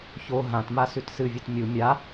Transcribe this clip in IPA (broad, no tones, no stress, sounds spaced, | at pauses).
ç o ɦ ã t m a s ʉ t s ɨ vʲ ɵ t mʲ u mʲ a